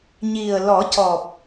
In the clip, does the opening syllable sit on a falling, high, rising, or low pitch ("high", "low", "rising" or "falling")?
low